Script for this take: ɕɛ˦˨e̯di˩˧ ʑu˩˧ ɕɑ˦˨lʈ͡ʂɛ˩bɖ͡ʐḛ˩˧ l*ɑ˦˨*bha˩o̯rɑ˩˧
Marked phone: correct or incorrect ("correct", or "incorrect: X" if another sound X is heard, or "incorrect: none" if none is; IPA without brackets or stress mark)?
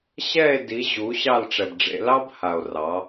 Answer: incorrect: ɑ˥